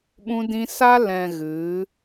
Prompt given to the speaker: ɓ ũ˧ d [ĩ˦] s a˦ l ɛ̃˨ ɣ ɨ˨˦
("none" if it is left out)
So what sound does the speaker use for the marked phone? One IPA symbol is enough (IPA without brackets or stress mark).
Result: ĩ˧